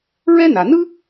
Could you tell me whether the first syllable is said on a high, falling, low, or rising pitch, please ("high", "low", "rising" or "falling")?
high